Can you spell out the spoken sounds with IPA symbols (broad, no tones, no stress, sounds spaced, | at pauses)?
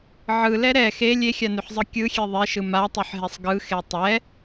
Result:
ʕ ɯ l ɛ ɾ ɛ x e lʲ e xʲ a n ʉ ħ zˤ ɯ kʲ ɯ xʲ e ðˤ e ʃ ɯ m a tˤ ʉ ħ ɦ e sˤ ɡ ɯ x e tˤ ɛ